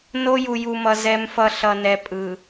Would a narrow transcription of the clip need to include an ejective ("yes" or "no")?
yes